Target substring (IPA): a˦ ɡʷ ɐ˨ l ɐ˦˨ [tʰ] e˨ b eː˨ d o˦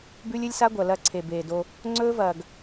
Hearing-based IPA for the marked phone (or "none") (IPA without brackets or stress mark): ǀʰ